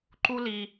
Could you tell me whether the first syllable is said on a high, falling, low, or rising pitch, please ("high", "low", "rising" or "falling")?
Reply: high